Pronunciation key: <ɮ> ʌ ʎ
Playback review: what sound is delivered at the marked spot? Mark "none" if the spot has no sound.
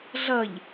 ɮ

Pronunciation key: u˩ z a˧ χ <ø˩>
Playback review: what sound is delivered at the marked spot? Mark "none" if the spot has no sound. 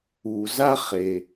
e˩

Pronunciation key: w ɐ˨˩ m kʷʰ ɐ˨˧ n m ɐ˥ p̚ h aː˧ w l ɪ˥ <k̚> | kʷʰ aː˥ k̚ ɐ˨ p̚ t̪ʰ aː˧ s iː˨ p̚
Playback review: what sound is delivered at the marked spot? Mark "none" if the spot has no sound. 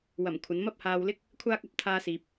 k̚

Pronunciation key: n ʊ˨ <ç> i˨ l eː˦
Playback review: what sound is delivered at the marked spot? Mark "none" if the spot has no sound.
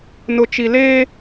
t͡ʃ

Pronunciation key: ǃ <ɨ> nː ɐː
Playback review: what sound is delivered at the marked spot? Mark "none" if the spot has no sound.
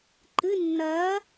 ɨ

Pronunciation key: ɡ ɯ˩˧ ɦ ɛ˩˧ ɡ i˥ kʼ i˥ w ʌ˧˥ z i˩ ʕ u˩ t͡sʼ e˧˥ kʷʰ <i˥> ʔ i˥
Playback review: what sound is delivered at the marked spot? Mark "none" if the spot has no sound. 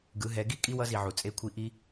i˧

